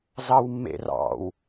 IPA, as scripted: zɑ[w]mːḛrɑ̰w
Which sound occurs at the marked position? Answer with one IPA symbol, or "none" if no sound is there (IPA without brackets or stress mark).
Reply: w